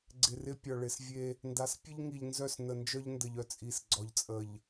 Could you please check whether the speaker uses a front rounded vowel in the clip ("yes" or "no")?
yes